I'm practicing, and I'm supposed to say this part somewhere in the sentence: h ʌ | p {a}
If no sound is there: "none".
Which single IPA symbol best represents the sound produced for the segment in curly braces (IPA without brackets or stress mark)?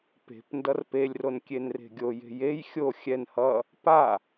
a